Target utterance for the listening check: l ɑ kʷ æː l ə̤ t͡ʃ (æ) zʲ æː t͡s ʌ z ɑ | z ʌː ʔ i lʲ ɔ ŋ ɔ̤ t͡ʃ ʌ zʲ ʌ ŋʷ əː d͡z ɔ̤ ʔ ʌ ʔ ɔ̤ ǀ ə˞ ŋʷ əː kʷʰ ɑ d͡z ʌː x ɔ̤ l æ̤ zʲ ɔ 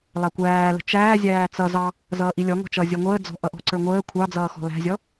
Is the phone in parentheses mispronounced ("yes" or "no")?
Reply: yes